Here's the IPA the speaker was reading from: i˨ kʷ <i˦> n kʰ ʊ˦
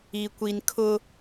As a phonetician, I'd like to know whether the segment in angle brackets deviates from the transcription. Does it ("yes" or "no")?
yes